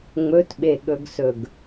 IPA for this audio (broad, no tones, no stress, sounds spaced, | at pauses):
ŋ͡m ɵ t ɓ e ɠ ɵ ɡ s ɵ ɡ